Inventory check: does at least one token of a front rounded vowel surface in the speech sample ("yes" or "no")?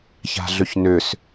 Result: yes